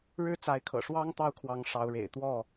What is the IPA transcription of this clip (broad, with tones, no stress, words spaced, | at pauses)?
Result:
ɻɻ̩˦ t͡sa˨˦ɪ̯kʰɤ̰˨˩ ʂwɑ˦ŋ t̪ɑ˦ʊ̯kʰwɑ˨˦ŋ ʂɑ˨˦ʊ̯ɻḛ˨˩ɪ̯ t̪wɔ˥˨